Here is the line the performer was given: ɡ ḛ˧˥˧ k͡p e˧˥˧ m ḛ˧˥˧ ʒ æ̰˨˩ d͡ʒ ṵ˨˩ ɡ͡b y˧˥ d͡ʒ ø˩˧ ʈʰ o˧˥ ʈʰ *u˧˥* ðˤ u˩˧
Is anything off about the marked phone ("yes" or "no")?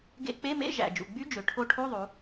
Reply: yes